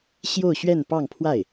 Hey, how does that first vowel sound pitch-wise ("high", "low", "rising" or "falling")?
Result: falling